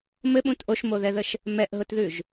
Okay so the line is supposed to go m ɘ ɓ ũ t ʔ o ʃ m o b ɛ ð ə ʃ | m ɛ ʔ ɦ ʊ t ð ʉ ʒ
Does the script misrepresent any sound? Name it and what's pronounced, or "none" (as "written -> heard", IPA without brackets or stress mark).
b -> ð